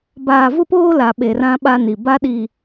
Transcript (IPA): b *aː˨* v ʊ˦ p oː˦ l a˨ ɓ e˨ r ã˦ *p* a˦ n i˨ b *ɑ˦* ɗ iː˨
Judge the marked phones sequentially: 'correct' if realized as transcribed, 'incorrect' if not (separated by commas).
correct, incorrect, incorrect